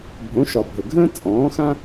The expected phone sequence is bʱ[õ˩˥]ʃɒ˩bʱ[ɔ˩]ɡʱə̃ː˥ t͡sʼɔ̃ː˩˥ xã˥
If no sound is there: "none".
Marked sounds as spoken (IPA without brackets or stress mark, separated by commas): õ˩˥, ə˩